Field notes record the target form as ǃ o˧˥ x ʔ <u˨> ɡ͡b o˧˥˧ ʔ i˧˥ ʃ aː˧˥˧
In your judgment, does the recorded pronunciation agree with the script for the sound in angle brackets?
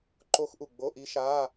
yes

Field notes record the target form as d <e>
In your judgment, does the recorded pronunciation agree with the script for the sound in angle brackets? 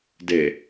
yes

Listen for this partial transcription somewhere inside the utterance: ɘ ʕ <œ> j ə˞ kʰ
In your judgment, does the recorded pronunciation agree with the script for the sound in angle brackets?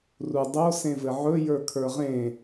no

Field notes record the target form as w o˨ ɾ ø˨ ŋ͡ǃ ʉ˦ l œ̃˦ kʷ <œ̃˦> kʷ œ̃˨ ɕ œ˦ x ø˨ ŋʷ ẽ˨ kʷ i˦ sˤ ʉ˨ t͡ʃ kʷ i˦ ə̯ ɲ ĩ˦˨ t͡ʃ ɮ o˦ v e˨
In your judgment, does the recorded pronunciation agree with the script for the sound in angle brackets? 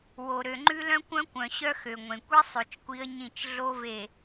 yes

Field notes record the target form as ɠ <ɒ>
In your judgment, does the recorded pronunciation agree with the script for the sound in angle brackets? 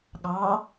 no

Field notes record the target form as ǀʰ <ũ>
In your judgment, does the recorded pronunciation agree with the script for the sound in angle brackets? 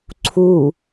no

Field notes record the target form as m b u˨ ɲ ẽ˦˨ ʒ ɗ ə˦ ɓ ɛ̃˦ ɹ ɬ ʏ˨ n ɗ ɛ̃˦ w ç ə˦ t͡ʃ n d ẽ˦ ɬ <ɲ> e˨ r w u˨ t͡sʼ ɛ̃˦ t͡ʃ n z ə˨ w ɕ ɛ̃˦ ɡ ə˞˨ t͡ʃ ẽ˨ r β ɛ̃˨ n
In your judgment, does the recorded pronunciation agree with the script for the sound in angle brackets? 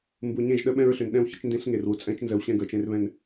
no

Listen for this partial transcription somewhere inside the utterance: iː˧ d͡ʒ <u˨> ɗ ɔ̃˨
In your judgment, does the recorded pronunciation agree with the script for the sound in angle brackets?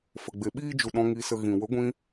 yes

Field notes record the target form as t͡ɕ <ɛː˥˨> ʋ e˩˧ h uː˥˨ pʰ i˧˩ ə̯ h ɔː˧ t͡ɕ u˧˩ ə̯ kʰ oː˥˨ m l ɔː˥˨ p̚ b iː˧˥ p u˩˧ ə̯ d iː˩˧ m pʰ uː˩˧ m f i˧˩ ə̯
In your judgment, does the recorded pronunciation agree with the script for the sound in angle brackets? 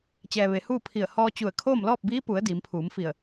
no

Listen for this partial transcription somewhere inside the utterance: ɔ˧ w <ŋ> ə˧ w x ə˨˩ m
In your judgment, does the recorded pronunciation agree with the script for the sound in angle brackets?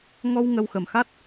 yes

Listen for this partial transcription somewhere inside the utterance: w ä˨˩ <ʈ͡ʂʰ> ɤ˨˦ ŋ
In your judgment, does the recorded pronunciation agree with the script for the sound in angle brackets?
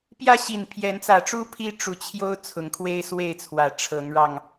yes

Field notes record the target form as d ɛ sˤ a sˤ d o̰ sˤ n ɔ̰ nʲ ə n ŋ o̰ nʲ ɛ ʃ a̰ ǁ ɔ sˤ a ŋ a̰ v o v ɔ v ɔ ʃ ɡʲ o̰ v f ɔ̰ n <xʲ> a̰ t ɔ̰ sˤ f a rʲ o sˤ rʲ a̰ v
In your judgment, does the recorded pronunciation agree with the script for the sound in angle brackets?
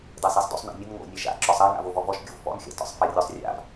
yes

